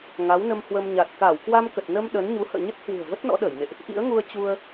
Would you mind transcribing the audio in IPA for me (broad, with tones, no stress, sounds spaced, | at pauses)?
ŋ a˨˦ w n ə˧ m h w ə˧ m ɲ a˨˩ t̚ k aː˧˩ w k w a˧ m k ə˨˩ t̚ n ə˧ m ɗ ə˨˦ n ɲ u˨˦ h ə̰ː˧˨ ɲ ə˦˥ t̚ h w ɨ̤˨˩ ə̯ v ə˦˥ t̚ n ɔ̰˧˥ ɗ əː˧˩ j n ḛ˧˨ ʔ | ʔ ḭ˧˥ ə̯ ŋ u˧ ə̯ t͡ɕ u˧ ə̯